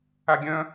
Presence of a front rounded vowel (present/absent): present